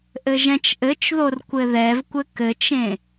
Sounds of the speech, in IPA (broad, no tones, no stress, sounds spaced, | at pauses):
ʔ ɘ ʒ ɛ̃ t͡ʃ ʔ ɘ t͡ʃ ð o r kʷ ɘ ð ɛ v kʷ ɘ k ɘ t͡ʃ ẽ